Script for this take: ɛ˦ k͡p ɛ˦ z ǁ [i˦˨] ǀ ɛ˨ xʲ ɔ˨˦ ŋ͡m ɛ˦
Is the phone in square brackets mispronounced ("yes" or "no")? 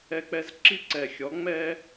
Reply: yes